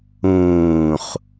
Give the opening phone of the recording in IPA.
ũː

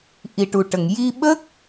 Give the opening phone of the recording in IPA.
ʔ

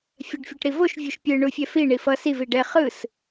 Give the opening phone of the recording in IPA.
fʲ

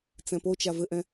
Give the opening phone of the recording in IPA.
t͡s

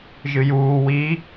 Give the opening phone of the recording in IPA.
ʒ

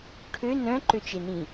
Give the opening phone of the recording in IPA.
ʈʰ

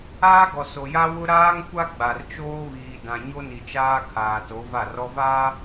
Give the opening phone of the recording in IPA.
aː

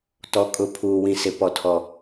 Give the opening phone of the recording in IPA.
t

